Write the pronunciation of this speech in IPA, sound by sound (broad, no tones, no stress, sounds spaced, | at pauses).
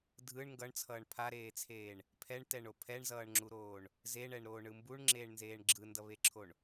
dʱ ɯ ɳ ŋ ɡ ʌ ɳ t͡sʰ ʌː ɳ pʰ a ɾ eː t͡sʰ eː ɳ | pʰ ɛ ɳ t ɛ ɳ o pʰ ɛ ɳ z ʌː ɳ ŋ͡ǁ u ɾ oː ɳ | z e ɳ ɛ ɳ ɾ oː ɳ ɯ m b u ɳ ŋ͡ǁ eː ɳ n z eː ɳ ɡ͡ǁ ɯ n d ʌ β e ǁʰ o ɳ